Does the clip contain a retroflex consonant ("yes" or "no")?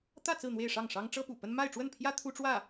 yes